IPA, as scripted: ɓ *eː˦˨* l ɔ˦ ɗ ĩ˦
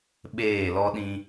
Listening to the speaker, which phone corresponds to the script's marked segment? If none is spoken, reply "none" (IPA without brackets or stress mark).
eː˦˨